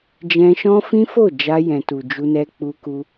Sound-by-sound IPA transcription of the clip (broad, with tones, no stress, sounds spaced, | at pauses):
d͡ʒ ɛ̃˧ ʃ ɔ̃˦ f ĩ˦ f o˦˨ d͡ʒ a˧ j ɛ̃˨ t u˨ d͡ʒ u˧ n ɛ˧ k͡p u˧ k u˧